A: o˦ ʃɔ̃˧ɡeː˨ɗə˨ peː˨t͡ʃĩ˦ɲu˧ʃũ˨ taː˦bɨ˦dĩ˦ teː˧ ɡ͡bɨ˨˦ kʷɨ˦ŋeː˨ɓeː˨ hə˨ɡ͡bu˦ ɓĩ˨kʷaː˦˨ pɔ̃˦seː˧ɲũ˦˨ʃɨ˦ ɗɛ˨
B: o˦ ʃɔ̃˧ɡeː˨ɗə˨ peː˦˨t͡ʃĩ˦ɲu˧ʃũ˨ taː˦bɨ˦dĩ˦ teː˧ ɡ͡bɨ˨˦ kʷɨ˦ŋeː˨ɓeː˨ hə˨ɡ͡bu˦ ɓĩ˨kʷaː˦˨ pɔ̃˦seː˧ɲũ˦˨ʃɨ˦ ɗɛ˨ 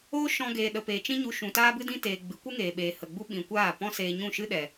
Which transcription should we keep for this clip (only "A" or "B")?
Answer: A